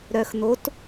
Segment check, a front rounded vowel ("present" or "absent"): present